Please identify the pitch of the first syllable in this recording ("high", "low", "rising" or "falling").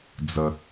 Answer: low